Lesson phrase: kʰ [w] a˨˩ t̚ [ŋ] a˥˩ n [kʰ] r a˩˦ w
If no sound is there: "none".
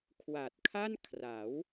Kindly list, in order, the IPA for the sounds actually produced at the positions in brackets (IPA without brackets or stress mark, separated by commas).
w, kʰ, kʰ